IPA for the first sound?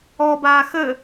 ɔ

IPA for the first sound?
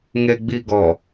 ŋ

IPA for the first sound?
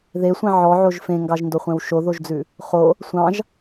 ð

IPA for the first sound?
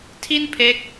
tʰ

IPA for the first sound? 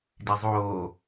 d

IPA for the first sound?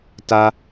t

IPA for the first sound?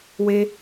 w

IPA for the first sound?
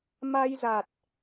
m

